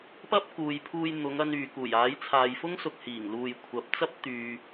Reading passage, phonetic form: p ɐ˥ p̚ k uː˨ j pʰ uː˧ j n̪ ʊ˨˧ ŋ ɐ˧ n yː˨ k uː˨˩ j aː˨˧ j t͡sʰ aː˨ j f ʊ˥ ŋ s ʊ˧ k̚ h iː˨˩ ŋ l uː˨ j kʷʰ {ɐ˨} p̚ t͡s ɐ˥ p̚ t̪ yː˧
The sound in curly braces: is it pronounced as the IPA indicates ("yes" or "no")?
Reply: yes